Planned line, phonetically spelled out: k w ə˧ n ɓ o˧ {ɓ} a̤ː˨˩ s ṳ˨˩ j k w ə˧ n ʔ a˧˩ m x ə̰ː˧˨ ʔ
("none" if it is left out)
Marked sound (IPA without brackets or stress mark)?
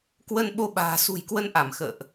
ɓ